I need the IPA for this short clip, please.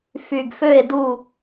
fy˩ɡfø˦˨e̯du˦˨

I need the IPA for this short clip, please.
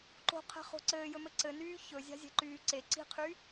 ǃo̤qʰɛ̤χo̤ ǀɘːjɵmɘ ǀɘnyː çɵzʲa̤zʲɛ̤ǃyː ǀe ǀi̤qʰy

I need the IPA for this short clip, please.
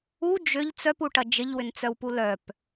u d͡ʒʏʎ t͡sœpuʈɐ d͡ʒɪʎwʏnt͡sœwpu lœp

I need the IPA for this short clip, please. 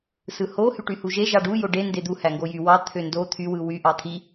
sɯho hyʈyhuʒe ʒɑɖu joɖe nded̪u hæŋɡojy wɑ t̪ʰøndo t̪ʰy wɯwy ʔɑt̪ʰi

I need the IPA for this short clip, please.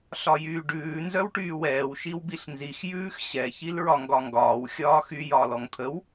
ɬɒjyːɖʉː nzœwʈyːwɛːw ʃiwbiɬnzix jʉːxɕɛ çilɹɒŋɡɒŋɡɒːw xʲɒːxy jɒːlɔŋt̪ʰəw

